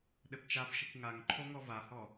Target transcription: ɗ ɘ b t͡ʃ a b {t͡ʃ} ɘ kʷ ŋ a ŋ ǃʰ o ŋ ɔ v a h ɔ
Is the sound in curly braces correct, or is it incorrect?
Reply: incorrect